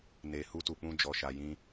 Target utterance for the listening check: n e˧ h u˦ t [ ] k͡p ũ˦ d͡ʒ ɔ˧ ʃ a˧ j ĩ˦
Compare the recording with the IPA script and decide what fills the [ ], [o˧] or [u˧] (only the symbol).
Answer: u˧